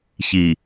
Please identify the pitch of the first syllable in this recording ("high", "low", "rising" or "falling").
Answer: low